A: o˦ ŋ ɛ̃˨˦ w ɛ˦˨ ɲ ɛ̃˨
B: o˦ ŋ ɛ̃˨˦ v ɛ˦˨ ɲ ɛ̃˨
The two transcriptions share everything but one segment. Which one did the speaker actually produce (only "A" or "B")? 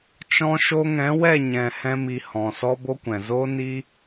A